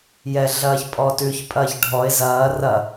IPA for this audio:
j ɛ ɮ ɐː ç pʼ ɔː t ʉ ç pʼ ɐː ç ɖʱ ɔ ɪ̯ z ɐː r ɐ

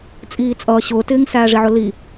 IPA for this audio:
t͡sʼ iː t͡sʼ ʌː ɕ ʊː t ɪː ŋ s æː ʐ i ʕ ʊ l i

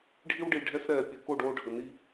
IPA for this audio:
ɖʱ i˦ w ɖ i˨ ɖʱ ɛ˧ s ɾ ɛː˨ pʲ ɨ˨ k o˦˨ ɖ oː˧ ɖʱ ə˨ n i˦

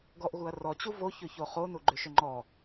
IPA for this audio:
ɡ ɔ ʔ ɣ u ɐ̯ r ɔ t͡ɕ u v o ç ʏ ç o χ o n u ɡ͡ǃ ʏ ʃ ʏ ŋ͡ǃ ɔ

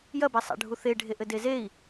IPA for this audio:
j ɐ b ɛ sˤ a̰ ɖʱ u θ e ɖʱ e ʔ ɘ d e z e i̯

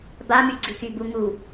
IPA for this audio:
b a m y ɡ͡ǀ i k y b u ŋ u

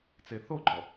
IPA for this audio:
t͡s e θ o ɡ͡ǃ ɔ

